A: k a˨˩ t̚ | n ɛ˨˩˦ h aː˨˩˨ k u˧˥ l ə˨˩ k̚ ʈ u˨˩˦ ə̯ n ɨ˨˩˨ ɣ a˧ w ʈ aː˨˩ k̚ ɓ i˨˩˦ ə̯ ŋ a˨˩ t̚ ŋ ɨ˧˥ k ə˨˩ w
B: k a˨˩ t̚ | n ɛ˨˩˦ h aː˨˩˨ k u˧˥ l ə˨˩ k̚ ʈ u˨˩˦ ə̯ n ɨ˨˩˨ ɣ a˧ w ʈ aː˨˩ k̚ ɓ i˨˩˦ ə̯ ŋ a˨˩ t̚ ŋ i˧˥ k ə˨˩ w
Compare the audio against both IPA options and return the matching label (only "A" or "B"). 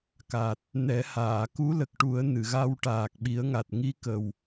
B